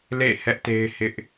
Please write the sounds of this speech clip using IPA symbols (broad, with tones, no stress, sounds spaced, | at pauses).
l ḛ˦˨ h ɛ˦ ʔ t e˦ ɪ̯ h ɪ˦ ʔ